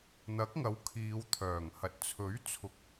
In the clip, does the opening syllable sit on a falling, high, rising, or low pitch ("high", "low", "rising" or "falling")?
rising